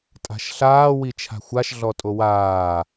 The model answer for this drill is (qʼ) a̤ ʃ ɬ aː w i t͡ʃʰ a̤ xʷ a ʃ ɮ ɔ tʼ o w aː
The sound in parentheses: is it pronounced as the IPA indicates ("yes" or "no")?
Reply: no